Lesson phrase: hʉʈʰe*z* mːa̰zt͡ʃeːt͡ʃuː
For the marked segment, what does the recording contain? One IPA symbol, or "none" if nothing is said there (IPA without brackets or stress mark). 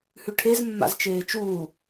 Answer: z